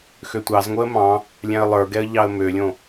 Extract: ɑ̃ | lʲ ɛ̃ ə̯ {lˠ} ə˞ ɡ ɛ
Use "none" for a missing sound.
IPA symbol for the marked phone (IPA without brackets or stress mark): lˠ